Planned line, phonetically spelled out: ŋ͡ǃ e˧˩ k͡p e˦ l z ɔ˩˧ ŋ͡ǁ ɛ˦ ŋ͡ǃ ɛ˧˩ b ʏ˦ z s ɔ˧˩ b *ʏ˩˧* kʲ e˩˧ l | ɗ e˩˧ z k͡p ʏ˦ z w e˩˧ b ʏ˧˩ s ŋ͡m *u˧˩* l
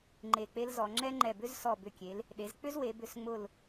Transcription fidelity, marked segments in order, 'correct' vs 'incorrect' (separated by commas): incorrect, incorrect